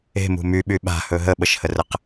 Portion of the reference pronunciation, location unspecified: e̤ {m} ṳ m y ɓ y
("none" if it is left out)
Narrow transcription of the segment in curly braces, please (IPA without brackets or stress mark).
m